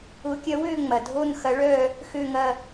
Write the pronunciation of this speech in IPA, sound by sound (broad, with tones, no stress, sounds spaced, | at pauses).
ʊː˧˥ kʲ ɐ˧˥ w øː˥˧ ŋ͡m ɐ˨ dʱ o˥˧ n x ɐ˧˥ ɭ œː˥˧ | x ø˥˧ ŋ ɐ˥˧